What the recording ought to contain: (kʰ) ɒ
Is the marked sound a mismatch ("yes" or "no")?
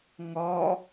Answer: yes